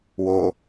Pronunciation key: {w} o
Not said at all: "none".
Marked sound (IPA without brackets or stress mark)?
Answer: w